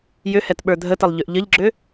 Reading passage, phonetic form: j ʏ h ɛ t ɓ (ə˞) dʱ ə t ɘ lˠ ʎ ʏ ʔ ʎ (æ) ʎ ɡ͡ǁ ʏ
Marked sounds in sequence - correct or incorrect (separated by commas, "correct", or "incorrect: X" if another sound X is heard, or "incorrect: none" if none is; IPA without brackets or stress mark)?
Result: correct, incorrect: ə